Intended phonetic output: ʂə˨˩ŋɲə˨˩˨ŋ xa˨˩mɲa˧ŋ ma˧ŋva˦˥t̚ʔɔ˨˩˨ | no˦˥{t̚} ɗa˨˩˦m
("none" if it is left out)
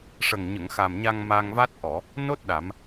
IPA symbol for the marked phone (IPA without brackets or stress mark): t̚